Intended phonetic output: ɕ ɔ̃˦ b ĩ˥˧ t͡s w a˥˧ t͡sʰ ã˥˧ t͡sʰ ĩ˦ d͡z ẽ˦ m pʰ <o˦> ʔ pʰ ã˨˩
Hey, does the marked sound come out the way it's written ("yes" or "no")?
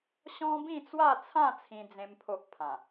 yes